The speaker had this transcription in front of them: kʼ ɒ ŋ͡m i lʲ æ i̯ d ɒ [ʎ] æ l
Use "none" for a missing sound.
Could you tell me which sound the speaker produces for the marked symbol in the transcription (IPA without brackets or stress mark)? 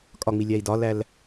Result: l